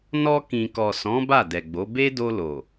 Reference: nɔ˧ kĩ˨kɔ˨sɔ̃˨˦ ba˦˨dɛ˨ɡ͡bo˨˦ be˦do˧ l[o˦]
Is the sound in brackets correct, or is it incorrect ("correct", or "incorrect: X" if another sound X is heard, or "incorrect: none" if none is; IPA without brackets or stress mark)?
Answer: incorrect: o˨